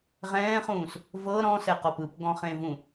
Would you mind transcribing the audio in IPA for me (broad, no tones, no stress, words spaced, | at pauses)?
ʁɛ̃ːχũːs | vɤ ɾɔ̃sɛqɔp ɯpɡɔ̃χẽvũ